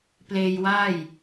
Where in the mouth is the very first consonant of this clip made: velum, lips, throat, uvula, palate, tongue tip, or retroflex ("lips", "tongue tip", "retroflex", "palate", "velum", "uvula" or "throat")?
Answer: lips